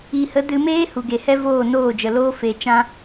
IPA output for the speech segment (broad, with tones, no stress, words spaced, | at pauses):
i˨hə˨˦ dɨ˧meː˦ hu˨ɡe˨hɛ˦ voː˦˨noː˦˨d͡ʒə˨loː˦ fe˧ t͡ʃã˧